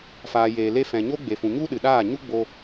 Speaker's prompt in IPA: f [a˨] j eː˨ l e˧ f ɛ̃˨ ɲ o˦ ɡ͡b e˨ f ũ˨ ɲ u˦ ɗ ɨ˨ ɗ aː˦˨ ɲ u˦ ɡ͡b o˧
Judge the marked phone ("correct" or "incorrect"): incorrect